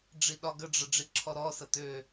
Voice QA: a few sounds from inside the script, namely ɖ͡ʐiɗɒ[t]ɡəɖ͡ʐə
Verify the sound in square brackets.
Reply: incorrect: none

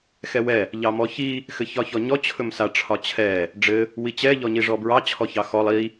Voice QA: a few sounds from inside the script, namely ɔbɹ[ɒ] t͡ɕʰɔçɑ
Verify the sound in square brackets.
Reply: incorrect: ɑ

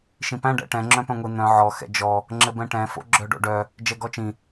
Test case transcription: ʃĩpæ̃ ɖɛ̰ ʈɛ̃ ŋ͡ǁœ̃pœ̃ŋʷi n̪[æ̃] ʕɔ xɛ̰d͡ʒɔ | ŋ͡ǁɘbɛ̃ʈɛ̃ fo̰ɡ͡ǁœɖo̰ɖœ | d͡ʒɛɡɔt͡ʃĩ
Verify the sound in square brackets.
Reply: incorrect: œ̃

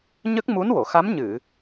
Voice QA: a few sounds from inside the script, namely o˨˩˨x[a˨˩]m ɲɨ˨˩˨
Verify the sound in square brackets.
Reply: incorrect: a˧˥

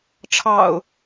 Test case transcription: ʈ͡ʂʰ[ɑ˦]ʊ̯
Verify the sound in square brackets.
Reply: incorrect: ɑ̰˨˩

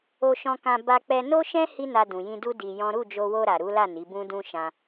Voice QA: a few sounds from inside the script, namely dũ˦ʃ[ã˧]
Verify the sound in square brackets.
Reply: correct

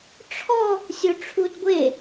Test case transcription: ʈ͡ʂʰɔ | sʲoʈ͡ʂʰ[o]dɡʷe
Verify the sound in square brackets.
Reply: incorrect: u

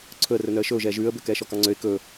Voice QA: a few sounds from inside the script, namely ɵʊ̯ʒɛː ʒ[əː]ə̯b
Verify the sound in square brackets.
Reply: incorrect: ʉː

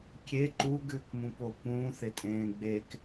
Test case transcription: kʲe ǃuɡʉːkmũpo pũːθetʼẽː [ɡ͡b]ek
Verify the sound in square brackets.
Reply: correct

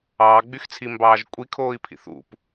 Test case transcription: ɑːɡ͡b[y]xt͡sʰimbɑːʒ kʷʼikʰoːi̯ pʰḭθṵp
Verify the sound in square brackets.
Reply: correct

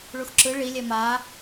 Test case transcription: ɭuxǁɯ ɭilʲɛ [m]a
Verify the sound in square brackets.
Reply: correct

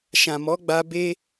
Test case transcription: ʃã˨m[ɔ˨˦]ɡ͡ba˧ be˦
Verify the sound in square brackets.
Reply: correct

